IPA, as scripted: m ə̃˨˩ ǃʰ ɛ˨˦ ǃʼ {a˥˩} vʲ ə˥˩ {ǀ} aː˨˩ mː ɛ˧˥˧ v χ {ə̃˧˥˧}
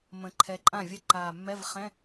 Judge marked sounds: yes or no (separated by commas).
no, no, no